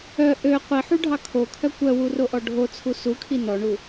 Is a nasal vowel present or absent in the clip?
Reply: absent